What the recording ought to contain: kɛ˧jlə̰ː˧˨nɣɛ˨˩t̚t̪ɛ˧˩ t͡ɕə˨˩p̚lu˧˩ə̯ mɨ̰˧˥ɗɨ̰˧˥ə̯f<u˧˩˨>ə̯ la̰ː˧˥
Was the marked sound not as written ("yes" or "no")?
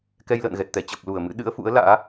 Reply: yes